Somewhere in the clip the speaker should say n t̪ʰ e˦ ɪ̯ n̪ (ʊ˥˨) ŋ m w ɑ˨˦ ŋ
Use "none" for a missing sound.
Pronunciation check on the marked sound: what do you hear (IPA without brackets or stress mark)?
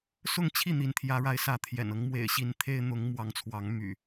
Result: ʊ˨˦